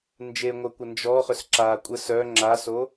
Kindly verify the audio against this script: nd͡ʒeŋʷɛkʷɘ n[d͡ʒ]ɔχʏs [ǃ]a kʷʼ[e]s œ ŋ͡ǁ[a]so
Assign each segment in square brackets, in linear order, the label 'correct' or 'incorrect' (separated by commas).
correct, incorrect, incorrect, correct